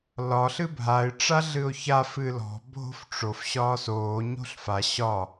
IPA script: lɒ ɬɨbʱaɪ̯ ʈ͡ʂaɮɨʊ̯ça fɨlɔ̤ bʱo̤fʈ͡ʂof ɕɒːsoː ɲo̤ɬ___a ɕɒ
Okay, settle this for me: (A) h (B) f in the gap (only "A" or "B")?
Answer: B